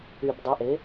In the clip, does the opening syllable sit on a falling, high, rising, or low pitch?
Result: low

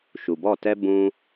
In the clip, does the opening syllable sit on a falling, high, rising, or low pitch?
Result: low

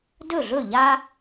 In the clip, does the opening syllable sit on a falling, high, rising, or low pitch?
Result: falling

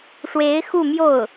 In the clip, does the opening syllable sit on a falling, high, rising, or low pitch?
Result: rising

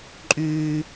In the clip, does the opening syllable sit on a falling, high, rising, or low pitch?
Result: high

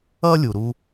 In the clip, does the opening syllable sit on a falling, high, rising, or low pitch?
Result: high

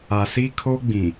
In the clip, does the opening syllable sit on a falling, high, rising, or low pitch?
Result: low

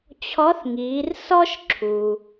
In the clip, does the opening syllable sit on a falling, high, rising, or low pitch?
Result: rising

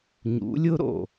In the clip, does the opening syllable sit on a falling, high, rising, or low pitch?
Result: rising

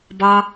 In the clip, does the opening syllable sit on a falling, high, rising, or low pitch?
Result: high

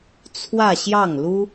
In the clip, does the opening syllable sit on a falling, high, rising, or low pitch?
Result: falling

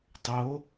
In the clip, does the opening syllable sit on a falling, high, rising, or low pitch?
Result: rising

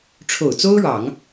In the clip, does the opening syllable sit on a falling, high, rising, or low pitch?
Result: low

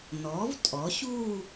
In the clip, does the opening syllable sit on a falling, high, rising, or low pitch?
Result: rising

